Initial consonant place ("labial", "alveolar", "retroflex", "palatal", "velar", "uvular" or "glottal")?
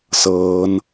alveolar